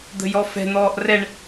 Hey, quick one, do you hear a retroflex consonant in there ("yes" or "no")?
yes